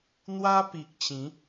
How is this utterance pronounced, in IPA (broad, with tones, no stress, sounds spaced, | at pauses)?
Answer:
n̪ w a˦ p i˨ k̚ t͡ɕ ĩ˨˦